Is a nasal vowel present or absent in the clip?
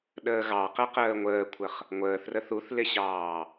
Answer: absent